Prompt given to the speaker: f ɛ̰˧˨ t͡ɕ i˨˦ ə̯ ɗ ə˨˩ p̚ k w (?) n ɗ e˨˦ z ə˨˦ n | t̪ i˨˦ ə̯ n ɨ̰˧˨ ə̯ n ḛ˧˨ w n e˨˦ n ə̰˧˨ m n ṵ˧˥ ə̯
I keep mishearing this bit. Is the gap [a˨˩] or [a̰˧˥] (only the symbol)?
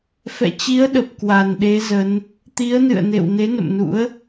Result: a˨˩